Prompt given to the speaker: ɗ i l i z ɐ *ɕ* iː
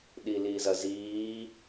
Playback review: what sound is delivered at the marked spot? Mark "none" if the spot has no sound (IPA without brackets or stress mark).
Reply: z